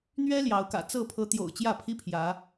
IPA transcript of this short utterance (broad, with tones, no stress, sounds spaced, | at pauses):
n̪ ɥ ɛ˦ l j ɑ˨˦ ʊ̯ k ä̰˨˩ t͡s ɤ˥˨ pʰ ɤ˨˦ t̪ j o̰˨˩ ʊ̯ t͡ɕ j ä˥˨ pʰ i˦ pʰ j ä˨˦